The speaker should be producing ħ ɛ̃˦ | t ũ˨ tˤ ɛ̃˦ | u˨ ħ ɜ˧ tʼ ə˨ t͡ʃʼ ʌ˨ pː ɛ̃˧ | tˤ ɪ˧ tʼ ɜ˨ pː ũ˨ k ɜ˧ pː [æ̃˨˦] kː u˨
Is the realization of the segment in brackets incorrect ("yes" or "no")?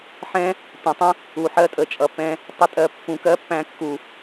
yes